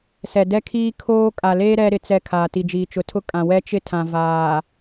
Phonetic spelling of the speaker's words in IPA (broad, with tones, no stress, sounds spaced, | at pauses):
s ɛ˨ d ɛ˦ kʰ iː˦ kʰ oː˦ kʼ a˨ l eː˦ ɾ ɛ˦ ɾ ɪ˨ t͡s ɛ˨ kʰ aː˨ t i˨ d͡ʒ iː˨ t͡ʃ ʊ˨ tʰ ʊ˦ kʼ ã˨ w ɛ˦ t͡ʃ ɪ˦ tʰ ã˨ v aː˨